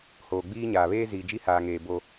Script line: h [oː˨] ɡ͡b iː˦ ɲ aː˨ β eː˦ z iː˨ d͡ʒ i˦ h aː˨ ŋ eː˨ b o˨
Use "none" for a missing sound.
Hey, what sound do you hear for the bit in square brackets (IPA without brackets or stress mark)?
oː˨